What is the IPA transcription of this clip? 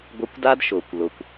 ɡʷ ɪ˧ kʷ d a˦ d ʃ ʊː˨ kʷ l ʊ˨ kʷ

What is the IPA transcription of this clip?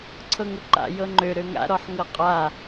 ǀʰ ɤ ŋ ʊ ǃ a̰ j ɤ ŋ͡ǃ ø ɾ ø ŋ a̰ ɾ ɔ ħ ŋ ɤ qʼ a

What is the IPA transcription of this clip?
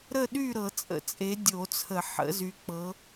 ɾ ə˥˨ ɗ y˥˨ ɾ ɤ˨˩˦ t͡sʼ ə̰˨˩˦ t͡sʼ e˨˦ dʲ o˨˩˦ t͡sʰ ə˨˩˦ ħ ə̰˨˦ z y˨˦ k͡p ɤ˨˦

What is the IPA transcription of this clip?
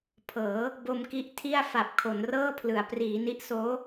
pʰ ɤː˩˦ | b o˧ m k i˦˥ ʔ tʰ i˥˩ a̯ f a˨˩ p̚ kʰ o˩˦ n r ɤː˥˩ pʰ l ɯ˩˦ a̯ p r iː˩˦ n i˦˥ ʔ s oː˦˥

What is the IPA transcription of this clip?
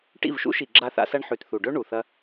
ʈ ḭ˦˨ v ʃ ṵ˦ ʃ i˨ ɡ͡ǁ a˧ θ a̰˧ s ɐ˧ ɳ ħ ʉ˨ t θ u˨ ɖ ɵ˦ ɳ u˨ θ ɐ˦

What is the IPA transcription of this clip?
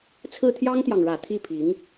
t͡sʰ ɹ̩˥˩ t̪ʰ j ɑ˥ ŋ t̪ j ɑ˨ ŋ ɻ ä˨˩ t̪ʰ i˥˩ pʰ i˧˥ ŋ

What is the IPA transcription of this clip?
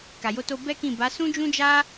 k a˨ j o˧ t o˧ b ɛ˦ k ĩ˦˨ b a˨˦ s ũ˦ d͡ʒ ũ˦ d͡ʒ a˦

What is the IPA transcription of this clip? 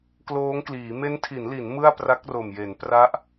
k l oː˦˥ ŋ k l iː˩˦ m e˦˥ n tʰ i˩˦ n l i˩˦ n m ɯ˥˩ a̯ p r a˦˥ k̚ r o˨˩ m j e˩˦ n p r a˦˥ ʔ

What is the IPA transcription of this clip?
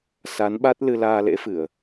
s a˨˦ n ɓ a˦˥ t̚ l ɨ˧ l aː˧ l ḛ˧˥ f ɨ˧˩˨ ə̯

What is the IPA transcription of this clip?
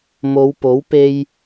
m o˨˧ w p o˨˥ w p e˧ j

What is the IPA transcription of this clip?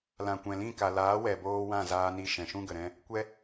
l ã˨ kʷ ɛ̃˨ l ĩ˦˨ k a˨ l aː˨˦ w ɛ˨ b oː˧ w ã˦˨ z aː˧ n i˧ ʃ ɛ̃˨ ʃ ũ˦ ɡ ə˨ ɾ ɛ̃˧ | kʷ ɛ˦

